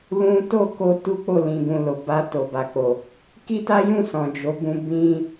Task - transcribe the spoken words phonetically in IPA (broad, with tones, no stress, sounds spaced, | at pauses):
l ũ˦ t o˦˨ k o˧ t u˦ k͡p o˦˨ l ĩ˨ ɡ ũ˨ l o˨ b a˧ t o˨ b a˨ k͡p o˨ | k i˦ t a˦ j ũ˦˨ s ɔ̃˨ d͡ʒ o˨˦ b ũ˧ b ĩ˦